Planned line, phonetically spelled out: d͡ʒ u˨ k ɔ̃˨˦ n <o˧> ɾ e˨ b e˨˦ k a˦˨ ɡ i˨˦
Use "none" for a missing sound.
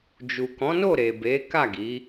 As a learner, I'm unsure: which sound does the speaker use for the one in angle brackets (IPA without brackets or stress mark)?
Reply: o˦˨